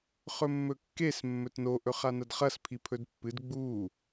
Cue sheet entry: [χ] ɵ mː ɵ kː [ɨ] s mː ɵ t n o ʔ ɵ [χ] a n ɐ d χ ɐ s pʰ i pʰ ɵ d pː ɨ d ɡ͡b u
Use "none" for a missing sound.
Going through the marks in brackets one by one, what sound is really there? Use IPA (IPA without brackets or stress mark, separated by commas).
χ, e, χ